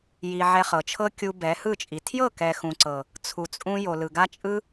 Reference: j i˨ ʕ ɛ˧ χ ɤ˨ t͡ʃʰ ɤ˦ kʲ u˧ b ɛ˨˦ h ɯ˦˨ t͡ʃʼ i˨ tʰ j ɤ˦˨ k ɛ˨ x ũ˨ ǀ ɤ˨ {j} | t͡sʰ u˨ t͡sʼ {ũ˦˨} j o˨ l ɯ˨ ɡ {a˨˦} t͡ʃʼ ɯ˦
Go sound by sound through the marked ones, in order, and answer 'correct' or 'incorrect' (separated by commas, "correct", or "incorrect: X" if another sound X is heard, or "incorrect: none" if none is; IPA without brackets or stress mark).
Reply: incorrect: none, incorrect: ũ˧, incorrect: a˦